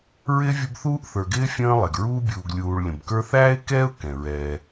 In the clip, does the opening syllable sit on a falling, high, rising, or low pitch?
high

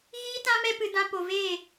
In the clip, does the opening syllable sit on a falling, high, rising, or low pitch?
high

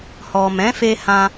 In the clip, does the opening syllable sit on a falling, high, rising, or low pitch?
low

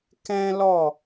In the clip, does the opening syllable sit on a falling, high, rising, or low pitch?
high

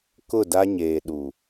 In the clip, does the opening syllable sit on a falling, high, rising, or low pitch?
falling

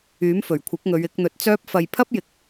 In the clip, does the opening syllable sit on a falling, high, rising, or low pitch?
rising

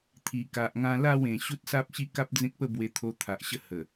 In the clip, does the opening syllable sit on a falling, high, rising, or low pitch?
low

